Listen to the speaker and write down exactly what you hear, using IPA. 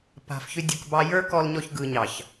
p a̤˨ f ç ʏ˧ dʲ ɯ˨ k b ɑ˧ j ə˞˦ k ɔ˧ l ɲ ɔ˧ ç ɡ ɯ˨ ɲ ɑ˨ ç

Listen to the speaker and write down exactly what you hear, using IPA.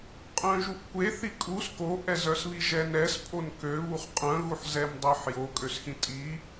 qʼ œ̃ ʒ u ʔ kʷ e θ i kʼ u s k o ʔ ɛ z œ s β i ʒ ɛ n ɛ s pʼ o n k ø β u χ qʼ œ̃ ɣ u ħ z ɛ m dˤ œ ħ j o kʼ ø s x ĩ tʼ i

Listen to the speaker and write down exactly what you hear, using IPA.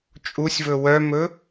t͡ʃʼ u sʲ v ɵ w œ m ɵ

